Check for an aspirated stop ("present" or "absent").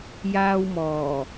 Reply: absent